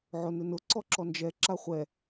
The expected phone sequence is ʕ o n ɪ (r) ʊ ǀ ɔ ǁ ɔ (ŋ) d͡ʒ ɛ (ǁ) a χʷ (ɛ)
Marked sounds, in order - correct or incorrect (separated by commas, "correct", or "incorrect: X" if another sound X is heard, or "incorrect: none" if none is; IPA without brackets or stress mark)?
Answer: incorrect: n, incorrect: n, correct, correct